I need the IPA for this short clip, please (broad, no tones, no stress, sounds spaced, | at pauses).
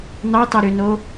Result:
n ɑ t ɑ ɾ ø n o